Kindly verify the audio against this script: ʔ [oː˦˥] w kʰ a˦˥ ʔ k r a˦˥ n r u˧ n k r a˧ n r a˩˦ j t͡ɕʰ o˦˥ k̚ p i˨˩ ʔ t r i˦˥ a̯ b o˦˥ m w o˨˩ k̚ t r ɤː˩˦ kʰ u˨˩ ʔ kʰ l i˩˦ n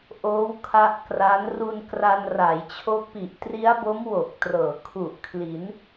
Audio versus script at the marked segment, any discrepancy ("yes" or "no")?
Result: no